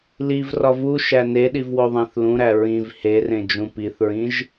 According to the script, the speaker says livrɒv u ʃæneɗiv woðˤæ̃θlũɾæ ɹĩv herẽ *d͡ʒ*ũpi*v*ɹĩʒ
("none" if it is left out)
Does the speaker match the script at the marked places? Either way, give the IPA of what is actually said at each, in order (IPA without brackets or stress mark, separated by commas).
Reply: d͡ʒ, θ